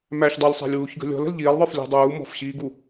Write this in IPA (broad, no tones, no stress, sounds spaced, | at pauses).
m æ ç dˤ æ lʲ sˤ æ̤ lʲ w uː ç ɡ ə̤ lʲ ɔ̤ l ə̤ l ʎ iː lˠ ðˤ ə˞ f lʲ ɔ̤ dˤ uː m ɔ̤ f ɕ iː ɡ u